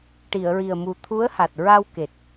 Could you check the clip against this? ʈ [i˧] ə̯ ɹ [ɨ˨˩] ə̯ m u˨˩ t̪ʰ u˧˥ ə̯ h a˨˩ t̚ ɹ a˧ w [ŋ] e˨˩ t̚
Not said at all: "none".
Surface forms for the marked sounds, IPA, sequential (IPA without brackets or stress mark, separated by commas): i˨˩˨, i˨˩, k